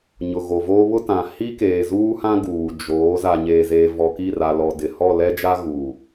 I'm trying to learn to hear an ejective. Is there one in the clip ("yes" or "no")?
no